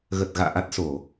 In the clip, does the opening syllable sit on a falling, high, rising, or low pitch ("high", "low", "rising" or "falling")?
low